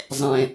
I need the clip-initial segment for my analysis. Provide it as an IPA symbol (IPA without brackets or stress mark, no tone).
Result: zˤ